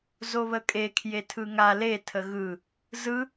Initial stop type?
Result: ejective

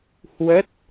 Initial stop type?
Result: plain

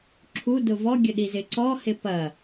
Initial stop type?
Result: click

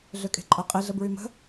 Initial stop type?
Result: ejective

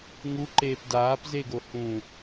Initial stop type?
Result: click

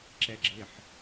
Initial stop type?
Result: click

